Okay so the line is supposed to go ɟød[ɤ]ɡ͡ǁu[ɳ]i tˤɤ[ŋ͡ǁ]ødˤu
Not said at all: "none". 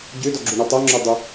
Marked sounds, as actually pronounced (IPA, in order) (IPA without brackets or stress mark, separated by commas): ɔ, ɳ, ŋ͡ǁ